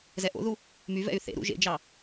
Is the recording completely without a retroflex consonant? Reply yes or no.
yes